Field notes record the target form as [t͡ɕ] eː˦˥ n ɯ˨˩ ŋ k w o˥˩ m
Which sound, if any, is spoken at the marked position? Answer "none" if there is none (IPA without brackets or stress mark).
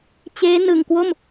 t͡ɕ